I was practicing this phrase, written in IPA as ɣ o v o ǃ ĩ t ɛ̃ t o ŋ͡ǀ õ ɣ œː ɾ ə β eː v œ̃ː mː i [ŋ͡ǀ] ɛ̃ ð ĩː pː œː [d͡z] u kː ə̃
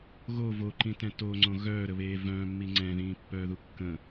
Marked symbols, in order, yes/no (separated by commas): yes, no